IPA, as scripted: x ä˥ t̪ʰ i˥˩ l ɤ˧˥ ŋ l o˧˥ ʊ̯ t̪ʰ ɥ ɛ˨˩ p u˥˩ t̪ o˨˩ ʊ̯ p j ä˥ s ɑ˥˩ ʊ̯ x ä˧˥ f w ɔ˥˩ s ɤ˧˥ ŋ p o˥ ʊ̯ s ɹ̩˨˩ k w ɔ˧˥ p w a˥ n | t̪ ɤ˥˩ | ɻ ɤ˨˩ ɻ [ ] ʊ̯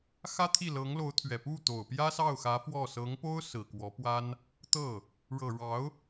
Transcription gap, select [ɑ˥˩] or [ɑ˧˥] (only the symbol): ɑ˧˥